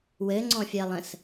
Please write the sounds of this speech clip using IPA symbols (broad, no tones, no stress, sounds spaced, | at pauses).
w ɘ ŋ͡ǀ ɔ̃ fʲ ɜ lˠ ə̃ s